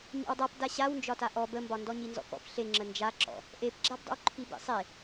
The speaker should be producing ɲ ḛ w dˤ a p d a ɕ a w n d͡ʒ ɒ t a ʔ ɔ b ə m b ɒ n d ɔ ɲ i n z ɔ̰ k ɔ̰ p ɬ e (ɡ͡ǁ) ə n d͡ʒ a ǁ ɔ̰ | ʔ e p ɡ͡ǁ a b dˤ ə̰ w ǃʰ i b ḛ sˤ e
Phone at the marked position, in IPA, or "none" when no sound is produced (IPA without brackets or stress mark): ŋ͡ǁ